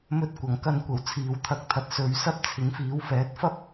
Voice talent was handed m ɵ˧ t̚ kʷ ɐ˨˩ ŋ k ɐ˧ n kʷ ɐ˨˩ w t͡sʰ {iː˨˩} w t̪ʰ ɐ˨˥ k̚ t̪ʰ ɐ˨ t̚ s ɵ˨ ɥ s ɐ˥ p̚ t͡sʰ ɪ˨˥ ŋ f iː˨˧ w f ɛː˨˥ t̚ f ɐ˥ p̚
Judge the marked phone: incorrect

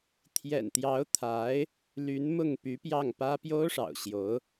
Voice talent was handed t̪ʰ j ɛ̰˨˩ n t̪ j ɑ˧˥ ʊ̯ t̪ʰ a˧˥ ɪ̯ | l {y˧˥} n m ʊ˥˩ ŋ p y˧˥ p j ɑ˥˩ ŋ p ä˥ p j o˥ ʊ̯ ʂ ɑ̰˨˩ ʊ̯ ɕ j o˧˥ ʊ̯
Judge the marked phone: correct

